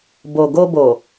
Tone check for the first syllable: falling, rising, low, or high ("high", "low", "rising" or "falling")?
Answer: low